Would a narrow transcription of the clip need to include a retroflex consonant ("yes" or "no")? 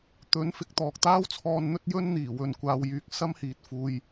no